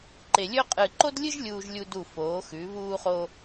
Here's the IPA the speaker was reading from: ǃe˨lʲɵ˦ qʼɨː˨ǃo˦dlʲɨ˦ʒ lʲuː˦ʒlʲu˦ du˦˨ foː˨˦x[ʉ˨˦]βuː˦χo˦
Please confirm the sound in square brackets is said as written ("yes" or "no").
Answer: yes